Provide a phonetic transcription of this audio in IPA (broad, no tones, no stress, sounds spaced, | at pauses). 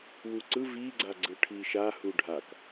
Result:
w u ǀ ɯ v i ɡ͡ǀ a ɡ͡ǀ ɯ ʈʰ i ʃ a h u ɖʱ a k